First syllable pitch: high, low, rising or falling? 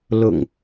low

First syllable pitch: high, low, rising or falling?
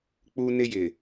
high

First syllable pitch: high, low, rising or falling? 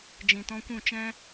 low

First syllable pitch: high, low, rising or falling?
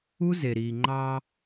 high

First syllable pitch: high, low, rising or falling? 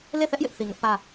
falling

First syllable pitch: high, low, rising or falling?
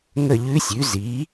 falling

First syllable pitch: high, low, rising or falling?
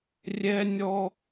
high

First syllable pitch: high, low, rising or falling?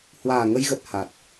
low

